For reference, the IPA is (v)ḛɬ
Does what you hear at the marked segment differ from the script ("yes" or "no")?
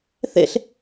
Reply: yes